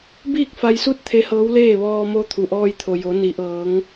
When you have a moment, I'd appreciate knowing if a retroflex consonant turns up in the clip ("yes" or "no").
no